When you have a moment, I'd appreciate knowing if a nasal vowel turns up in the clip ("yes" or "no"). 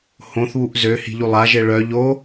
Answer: yes